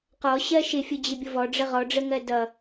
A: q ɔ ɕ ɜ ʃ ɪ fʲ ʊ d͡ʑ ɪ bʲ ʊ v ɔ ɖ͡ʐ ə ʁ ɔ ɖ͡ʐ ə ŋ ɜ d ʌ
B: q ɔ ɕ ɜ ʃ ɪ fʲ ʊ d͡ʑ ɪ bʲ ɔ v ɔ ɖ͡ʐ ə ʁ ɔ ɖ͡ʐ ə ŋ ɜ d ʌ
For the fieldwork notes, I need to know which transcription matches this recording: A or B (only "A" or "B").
A